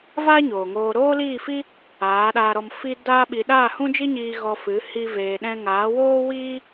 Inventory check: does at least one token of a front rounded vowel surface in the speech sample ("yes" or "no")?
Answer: no